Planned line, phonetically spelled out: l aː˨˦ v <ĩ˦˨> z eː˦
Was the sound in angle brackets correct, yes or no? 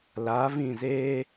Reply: yes